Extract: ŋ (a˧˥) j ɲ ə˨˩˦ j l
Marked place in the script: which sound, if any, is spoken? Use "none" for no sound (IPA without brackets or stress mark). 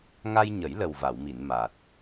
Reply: a˧